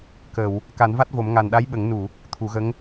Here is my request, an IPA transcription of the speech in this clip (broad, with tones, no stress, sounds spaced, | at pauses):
k əː˨˩˨ w | k a˨˩˦ n v a˦˥ t̚ v o˨˩˦ m ŋ a˨˩ n ɗ a˧˥ j ɓ ə˨˩˦ ŋ n u˨˩˨ | t̪ʰ u˨˩˦ ɣ ə˧˥ ŋ